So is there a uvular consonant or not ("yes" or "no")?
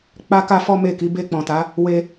no